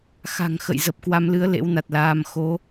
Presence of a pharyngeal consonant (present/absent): absent